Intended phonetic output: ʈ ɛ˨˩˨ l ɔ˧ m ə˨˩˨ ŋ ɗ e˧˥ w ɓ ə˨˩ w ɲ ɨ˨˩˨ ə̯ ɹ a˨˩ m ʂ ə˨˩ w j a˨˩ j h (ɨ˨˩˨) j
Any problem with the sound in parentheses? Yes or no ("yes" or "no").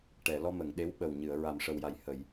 yes